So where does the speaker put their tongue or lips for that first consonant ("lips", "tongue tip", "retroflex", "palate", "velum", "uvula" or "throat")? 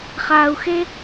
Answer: uvula